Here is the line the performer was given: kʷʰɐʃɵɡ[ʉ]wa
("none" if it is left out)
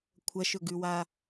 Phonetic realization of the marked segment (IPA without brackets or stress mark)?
ʉ